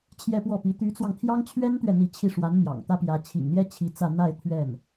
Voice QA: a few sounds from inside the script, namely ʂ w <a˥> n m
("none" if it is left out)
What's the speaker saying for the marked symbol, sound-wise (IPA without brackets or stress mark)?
a˧˥